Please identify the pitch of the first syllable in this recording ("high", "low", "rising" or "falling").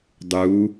rising